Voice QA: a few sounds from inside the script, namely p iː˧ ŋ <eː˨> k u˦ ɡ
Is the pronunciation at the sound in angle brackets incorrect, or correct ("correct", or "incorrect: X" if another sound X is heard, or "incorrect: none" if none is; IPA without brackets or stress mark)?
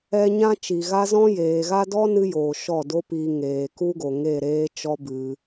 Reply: correct